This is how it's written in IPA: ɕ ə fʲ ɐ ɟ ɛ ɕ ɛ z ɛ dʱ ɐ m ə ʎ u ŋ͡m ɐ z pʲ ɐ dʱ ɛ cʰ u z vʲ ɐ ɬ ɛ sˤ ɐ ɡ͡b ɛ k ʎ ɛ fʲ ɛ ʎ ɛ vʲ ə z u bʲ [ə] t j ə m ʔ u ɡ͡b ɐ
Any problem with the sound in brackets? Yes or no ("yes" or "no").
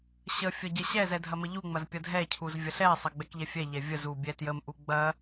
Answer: yes